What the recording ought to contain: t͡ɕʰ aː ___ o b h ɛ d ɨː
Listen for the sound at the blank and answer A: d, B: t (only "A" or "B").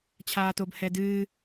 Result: B